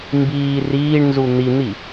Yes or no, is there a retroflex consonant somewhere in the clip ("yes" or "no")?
yes